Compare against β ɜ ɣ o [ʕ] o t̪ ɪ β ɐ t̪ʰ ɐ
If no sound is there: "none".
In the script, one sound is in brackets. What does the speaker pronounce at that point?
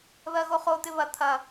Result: χ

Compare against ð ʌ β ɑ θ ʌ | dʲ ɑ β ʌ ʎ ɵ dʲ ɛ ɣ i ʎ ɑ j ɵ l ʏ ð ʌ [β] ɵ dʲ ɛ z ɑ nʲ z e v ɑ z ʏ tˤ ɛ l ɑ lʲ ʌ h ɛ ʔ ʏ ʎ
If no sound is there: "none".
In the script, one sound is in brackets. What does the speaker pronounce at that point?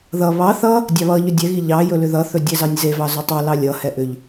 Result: θ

